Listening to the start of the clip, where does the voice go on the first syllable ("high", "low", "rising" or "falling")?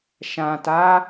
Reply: low